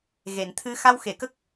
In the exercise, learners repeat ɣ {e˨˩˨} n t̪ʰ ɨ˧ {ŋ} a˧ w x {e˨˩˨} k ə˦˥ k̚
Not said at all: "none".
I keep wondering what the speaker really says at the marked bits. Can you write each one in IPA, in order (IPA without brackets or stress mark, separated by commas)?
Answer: e˨˩˨, x, e˨˩˨